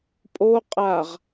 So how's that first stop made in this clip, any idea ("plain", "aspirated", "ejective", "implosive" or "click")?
ejective